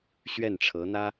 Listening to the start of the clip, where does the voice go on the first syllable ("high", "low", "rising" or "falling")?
falling